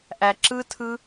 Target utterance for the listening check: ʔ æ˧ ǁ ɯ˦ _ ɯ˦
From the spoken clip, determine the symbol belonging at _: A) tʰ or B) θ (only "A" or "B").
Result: A